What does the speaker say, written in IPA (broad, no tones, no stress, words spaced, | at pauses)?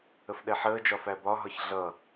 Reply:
əfɗɛħəːd͡ʒɒ fæbɒɦɒç ɮʌ